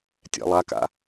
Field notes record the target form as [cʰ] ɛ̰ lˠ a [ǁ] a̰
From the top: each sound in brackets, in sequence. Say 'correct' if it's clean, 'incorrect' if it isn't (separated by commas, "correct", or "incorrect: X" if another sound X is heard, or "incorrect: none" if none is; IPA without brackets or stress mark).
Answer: incorrect: tʲ, incorrect: k